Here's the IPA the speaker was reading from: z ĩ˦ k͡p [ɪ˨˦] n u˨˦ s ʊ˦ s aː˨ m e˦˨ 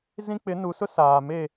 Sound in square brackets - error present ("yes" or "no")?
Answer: no